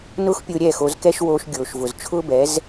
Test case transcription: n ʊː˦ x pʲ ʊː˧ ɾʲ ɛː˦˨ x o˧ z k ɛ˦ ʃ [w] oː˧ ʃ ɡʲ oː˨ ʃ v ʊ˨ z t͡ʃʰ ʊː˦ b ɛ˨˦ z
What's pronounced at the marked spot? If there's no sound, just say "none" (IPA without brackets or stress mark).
w